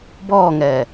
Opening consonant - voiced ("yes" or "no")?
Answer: yes